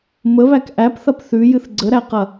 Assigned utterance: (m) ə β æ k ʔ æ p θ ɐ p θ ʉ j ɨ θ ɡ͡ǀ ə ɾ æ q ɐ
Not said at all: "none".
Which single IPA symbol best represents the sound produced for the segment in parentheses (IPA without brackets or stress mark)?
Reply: m